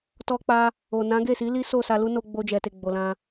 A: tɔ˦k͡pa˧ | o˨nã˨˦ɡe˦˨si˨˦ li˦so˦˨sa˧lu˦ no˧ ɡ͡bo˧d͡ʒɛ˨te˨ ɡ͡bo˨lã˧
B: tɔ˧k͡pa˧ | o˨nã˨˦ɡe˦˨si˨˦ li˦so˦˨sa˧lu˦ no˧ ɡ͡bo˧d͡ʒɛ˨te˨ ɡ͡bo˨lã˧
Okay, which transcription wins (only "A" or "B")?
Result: B